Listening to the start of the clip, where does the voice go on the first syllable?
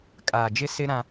low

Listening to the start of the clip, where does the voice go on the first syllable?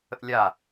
high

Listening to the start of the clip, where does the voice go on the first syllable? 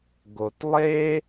low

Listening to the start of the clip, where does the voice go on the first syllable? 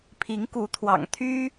rising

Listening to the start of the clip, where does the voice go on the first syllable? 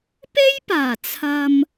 high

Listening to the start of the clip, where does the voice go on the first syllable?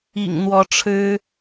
low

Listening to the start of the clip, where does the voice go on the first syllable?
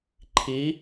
rising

